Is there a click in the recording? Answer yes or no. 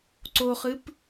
yes